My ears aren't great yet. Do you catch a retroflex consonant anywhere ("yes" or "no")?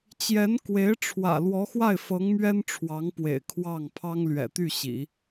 yes